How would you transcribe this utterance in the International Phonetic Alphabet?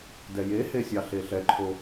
d ɛ j e h e sʲ ɑ ɬ e ɬ ɛ ǃʰ o

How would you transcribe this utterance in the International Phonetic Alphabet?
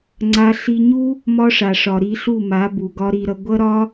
ŋ͡ǀ a˧ ɬ i˧ ɲ u˦ | m ɒ˦ ʂ a˨ ʂ ɒ˨ ɾ i˧ ɬ u˦˨ m a˨˦ b u˨ ɡ ɒ˦ ɾ i˧ ɾ ʌ˧ ɡʷ ʌ˦ ɾ ɒ˦

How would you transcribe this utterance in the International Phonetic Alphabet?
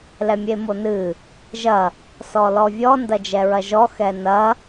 l ɛ mʲ e m o n ɨ | ʒ ɐ | s ɔ l ɔ vʲ ɔ n d ɐ d͡ʒ ɛ ɹ ɐ ʒ ɔ x ɛ n ɐ

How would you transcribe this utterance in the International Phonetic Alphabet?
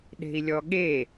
ɗ e̤ i̯ lʲ ɔ ɠ e

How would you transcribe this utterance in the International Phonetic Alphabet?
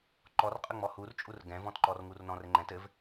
ǃ ɔ r qʼ ə ŋ͡m ɔ h u r t͡ʃʼ u r ɡ ɛ̃ v ɔ̃ t ǃ ɔ r ŋ u r n ɔ̃ r ɘ ŋ͡ǃ ɛ̃ t ɘ v

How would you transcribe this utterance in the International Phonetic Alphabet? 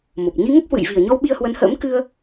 m o˨˩ p̚ ɲ i˧ ŋ ə˦˥ p̚ h w ɨ̰˧˨ j v i˨˩ ə̯ ɲ ɔ˧ w ɓ i˧ ə̯ h w ə˨˦ n h ə̰ː˧˥ m k ɨ˧ ə̯

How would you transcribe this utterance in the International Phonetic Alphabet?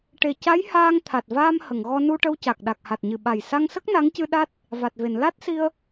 ʈ e˨˩ c a˧˥ j h aː˧ ŋ t̪ʰ a˨˩ t̚ v aː˧ m h ə˨˩˨ ŋ ɣ ɔ˧ n u˧ ʈ ə˧ w c a˨˩ k̚ ɗ a˨˩ k̚ h a˨˩ t̚ ɲ ɨ˨˩ ɓ a˨˩ j s a˧ ŋ s ə˦˥ k̚ n a˧˥ ŋ c ɨ˧ ɗ a˦˥ t̚ | v a˨˩ t̚ v e˨˩˨ n l a˦˥ t̚ s i˧ ə̯

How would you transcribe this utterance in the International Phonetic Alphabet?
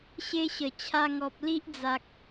ɕ e˦ ɕ ə˨˩ t͡ɕʰ a˧ ŋ ɔ˨ p̚ l i˦ ʔ d͡z a˨ k̚

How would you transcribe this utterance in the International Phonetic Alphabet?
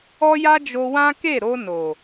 ɔ˦ j a˦ d͡ʒ o˧ w ã˦ k e˦˨ ɾ o˧ n o˨

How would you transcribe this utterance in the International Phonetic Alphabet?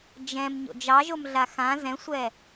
d͡ʒ ɛ̃ m ɲ o̰ d͡ʒ ɑ ʒ o m ɮ a x ã z ɛ̃ sʷ ɛ

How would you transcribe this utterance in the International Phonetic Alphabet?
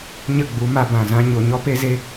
ɲ ə˦˨ ɡ͡b u˨˦ m a˧ b ã˨ z ã˦ ɲ o˧ ɲ ɔ˦ p e˦ z e˦

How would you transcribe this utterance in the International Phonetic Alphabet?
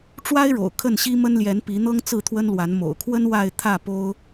ʈ͡ʂ w a˦ ɪ̯ ɻ o̰˨˩ ʊ̯ kʰ ə˥˨ n ɕ i˦ m ə˦ n l j ɛ˨˦ n p i˨˦ n̪ ɤ˦ ŋ t͡s ɹ̩˥˨ t̪ʰ w ə˦ n l w a˨˦ n m o̰˨˩ ʊ̯ kʰ w ə˦ n w a˥˨ ɪ̯ t̪ʰ ä˥˨ p o˦ ʊ̯

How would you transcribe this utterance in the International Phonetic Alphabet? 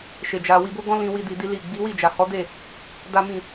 ʃ e˧ d͡ʒ a˧ w i˧ b o˦ ɡ ɔ̃˦ l ĩ˦ w i˦ d i˧ d i˦ l i˦˨ ɡ͡b i˨˦ w i˦˨ d͡ʒ a˨ h ɔ˨˦ d e˦˨ | d a˦ m ĩ˦˨

